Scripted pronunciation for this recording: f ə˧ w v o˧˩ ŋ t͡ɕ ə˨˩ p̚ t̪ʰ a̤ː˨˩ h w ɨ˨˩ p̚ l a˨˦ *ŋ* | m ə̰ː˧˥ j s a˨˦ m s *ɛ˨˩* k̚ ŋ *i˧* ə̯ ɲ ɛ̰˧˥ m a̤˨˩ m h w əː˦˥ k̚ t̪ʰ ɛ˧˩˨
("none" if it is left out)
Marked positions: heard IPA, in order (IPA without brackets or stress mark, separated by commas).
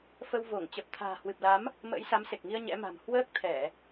m, e˨˩, i˧